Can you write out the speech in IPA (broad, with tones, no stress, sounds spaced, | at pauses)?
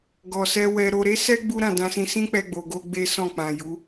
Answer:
ɡ ɔ˨ s ɛ˧ w ɛ˨ ɾ o˨ ɾ e˨˦ s ɛ˦ ɡ͡b u˦ ɾ ã˦˨ d ã˧ s ĩ˧ s ĩ˦ k͡p ɛ˧ ɡ͡b o˨ ɡ o˧ ɡ͡b e˦ s ɔ̃˦˨ k͡p ã˨ j u˨˦